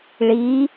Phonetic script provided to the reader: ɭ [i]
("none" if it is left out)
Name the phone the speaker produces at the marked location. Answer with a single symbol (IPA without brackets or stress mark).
i